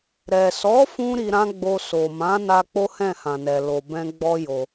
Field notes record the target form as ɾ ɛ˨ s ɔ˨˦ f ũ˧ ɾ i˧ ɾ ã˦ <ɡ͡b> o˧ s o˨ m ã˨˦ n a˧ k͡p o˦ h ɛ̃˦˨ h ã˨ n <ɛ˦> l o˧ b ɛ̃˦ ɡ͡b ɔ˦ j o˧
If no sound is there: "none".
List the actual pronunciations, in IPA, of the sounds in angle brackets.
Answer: ɡ͡b, ɛ˨

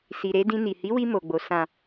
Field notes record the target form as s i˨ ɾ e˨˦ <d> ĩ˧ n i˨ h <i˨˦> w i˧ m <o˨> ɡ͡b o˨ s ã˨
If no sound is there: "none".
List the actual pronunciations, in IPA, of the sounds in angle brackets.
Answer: d, i˨˦, o˨

